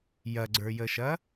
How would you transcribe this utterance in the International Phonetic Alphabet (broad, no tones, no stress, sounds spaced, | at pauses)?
j ɐ ɡ͡ǀ ə˞ j ə ʃ ɐ